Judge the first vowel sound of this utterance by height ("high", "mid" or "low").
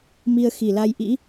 high